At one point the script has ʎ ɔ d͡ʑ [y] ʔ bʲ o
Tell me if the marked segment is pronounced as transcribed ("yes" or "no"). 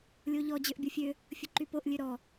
no